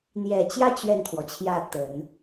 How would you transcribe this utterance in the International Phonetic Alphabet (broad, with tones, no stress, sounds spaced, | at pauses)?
n̪ j ɛ˨˩ t͡ɕ j ä˥˧ t͡ɕ ɥ ɛ˥˩ n t̪ʰ w ɔ˩ t͡ɕʰ j ä˥˩ t̪ ə˨˩˦ n